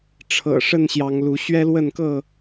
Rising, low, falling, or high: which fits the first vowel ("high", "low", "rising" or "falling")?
low